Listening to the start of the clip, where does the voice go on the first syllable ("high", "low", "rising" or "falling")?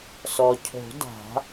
low